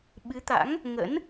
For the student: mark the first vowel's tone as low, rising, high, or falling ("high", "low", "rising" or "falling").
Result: rising